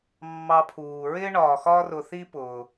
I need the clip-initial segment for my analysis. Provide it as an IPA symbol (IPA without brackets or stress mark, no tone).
mː